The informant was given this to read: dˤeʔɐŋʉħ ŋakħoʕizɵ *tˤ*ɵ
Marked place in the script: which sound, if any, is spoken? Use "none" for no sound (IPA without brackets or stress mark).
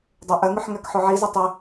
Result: tˤ